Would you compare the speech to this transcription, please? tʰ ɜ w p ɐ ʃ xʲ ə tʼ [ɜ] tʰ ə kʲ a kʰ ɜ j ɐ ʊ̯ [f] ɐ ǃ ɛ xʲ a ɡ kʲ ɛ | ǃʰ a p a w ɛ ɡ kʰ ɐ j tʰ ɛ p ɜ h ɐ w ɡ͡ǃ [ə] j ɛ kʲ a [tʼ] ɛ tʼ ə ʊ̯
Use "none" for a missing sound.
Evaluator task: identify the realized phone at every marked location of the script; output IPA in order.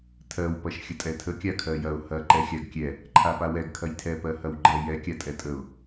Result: ɛ, h, ɛ, tʼ

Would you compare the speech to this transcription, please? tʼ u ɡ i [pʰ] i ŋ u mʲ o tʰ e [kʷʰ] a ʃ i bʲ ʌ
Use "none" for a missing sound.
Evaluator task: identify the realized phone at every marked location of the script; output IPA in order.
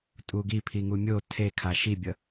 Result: pʰ, kʰ

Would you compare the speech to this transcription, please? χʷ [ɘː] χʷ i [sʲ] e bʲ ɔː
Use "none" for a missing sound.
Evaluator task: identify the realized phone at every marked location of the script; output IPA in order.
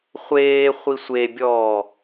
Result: eː, sʷ

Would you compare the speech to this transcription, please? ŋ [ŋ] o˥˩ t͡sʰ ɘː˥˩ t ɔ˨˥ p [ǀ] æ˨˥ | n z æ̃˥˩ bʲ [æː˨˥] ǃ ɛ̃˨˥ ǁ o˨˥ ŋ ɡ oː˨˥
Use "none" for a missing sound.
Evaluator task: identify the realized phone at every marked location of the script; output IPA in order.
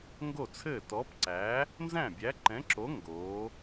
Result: ɡ, ǀ, æ˨˥

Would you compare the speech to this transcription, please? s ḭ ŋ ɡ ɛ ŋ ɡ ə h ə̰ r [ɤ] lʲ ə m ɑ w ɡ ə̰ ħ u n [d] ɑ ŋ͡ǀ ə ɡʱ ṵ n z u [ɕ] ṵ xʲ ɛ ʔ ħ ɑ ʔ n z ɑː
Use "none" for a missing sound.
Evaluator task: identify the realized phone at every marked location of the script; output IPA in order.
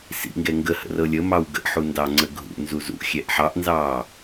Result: ɤ, d, z

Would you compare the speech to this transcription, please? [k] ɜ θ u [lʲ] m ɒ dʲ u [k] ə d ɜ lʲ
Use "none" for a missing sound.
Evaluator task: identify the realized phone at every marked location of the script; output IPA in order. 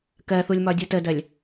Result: k, lʲ, t

